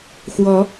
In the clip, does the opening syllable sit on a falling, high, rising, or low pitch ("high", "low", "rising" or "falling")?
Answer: rising